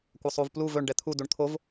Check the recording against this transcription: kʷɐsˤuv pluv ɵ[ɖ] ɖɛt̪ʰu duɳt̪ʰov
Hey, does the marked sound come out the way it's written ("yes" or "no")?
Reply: no